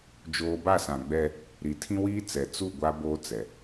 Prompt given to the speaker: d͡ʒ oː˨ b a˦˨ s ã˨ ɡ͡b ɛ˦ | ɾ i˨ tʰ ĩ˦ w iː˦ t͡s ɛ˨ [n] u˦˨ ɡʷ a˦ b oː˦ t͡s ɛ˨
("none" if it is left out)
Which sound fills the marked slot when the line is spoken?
t͡s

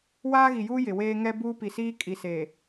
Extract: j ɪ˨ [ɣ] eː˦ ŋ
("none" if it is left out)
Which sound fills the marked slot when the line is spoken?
w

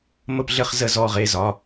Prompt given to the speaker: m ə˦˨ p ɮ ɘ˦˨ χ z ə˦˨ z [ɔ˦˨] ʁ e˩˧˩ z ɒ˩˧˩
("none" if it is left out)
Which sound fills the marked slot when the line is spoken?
ɔ˦˨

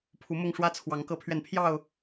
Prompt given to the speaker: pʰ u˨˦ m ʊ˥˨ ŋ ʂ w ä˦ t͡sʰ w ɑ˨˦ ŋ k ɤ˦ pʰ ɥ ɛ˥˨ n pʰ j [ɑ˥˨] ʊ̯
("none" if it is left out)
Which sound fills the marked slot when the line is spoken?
ɑ˥˨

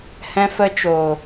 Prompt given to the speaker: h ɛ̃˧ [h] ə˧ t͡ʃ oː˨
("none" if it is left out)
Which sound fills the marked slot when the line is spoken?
f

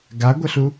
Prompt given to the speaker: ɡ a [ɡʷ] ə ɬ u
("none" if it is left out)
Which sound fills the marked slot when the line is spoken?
ɡʷ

